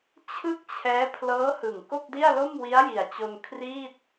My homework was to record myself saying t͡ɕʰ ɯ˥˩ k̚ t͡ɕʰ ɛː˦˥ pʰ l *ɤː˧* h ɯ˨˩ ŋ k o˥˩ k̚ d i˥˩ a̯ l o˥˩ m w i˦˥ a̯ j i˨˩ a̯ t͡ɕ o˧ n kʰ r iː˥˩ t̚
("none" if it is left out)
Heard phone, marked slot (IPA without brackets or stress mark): ɤː˦˥